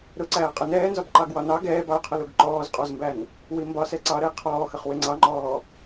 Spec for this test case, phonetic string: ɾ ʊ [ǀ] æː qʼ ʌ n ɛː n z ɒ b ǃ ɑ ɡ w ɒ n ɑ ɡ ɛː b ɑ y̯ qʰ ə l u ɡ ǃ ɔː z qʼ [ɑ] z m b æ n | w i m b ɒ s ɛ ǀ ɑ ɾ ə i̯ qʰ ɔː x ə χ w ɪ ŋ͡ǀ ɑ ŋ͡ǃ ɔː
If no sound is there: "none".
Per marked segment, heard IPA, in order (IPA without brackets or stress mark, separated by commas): ǀ, ɒ